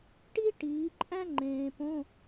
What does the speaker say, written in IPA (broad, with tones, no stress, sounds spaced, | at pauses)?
ʈ i˥ ʈ iː˨˦ ǃʼ æ̃˥ ŋ͡ǃ ẽː˨ p õ˧˥˧